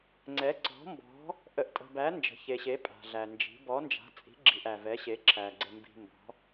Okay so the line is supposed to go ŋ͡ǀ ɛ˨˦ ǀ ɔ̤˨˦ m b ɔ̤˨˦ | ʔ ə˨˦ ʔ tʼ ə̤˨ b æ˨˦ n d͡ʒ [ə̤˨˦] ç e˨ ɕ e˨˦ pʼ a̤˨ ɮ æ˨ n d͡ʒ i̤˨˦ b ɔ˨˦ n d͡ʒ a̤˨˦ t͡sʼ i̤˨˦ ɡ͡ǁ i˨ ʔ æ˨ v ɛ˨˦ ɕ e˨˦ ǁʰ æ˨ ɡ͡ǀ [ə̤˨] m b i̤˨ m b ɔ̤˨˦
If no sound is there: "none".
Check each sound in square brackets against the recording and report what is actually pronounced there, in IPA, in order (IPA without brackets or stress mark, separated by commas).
ə̤˨, ə˨